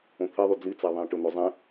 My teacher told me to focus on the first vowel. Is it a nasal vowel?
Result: yes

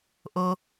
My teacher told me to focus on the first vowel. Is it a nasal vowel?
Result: no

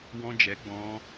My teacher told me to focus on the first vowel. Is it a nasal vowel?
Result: yes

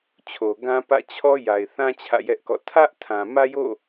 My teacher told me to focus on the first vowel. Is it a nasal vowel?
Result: no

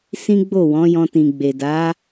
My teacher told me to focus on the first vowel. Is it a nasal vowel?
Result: yes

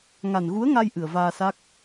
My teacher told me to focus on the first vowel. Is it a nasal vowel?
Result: no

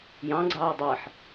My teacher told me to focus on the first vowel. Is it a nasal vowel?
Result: yes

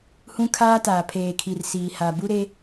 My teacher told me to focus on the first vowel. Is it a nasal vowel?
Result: yes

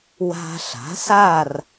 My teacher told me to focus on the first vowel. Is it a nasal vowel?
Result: no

